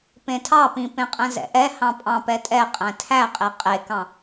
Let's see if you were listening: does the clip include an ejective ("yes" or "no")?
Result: yes